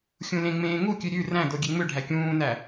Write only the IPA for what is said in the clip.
xʲũlẽŋ͡mẽː ŋukʲʉ ɾʲʉ ræ̃do ɡʲeŋ͡møɖʱæ kʲũːnæ

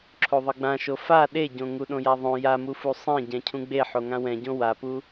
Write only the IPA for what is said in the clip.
ǁʰoðˤɯɡ͡bãʃo fa ɗeɟõ ŋuɗõjaðˤõ jamufu sˤẽ ɟɛ̃cʰũɡ͡be ħoŋãwɛ̃ɟõ wapu

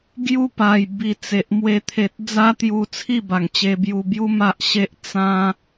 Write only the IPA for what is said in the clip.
ɡju˦pa˨˩j bi˨˩t͡se˨ʔmwe˧ t̪ʰe˨t̚d͡za˦t̪ju˧ t͡sʰi˥˧ba˨˩ŋt͡ɕe˧bju˧ bju˦ ma˦ʔɕe˦ʔ t͡sã˦

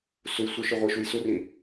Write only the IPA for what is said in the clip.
suj sʷəʃɨ ʁʷiʃuj surĩ

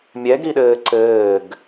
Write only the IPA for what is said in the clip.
mʲɛɡɾiɗɘː ǀɘːɡ

